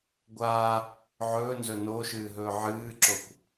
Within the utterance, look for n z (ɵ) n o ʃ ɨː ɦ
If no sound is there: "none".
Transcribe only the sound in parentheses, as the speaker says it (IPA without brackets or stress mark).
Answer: ɵ